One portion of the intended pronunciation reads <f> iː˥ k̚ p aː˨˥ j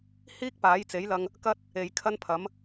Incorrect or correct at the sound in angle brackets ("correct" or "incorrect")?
incorrect